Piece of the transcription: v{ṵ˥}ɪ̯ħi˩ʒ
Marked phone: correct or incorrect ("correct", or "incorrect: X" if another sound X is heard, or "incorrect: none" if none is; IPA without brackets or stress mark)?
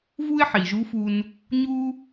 incorrect: u˥